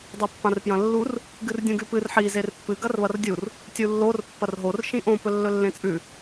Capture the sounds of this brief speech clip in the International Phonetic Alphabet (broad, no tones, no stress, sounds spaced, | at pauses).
dˤ e pː ã r p j ɐ̃ lː u r | ɡ ɨ r dʲ ũ ɡ ʉ p ɨ r ħ i z e r pː ɨ ɡ ɐ r β ɐ r dʲ u r | tʲ u lː o r pː ɐ r ɦ o r ʃ ĩ ʔ õ p ɵ lː ɵ lː ẽ t͡sʼ ʉ